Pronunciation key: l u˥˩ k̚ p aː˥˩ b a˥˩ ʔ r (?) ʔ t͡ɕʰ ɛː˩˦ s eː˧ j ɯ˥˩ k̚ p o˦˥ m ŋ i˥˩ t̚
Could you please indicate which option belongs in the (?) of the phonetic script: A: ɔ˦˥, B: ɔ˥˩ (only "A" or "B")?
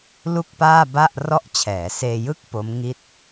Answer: B